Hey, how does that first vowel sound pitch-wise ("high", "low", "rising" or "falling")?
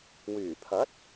low